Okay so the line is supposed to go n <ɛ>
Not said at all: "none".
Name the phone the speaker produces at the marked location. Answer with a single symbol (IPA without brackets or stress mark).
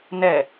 ɛ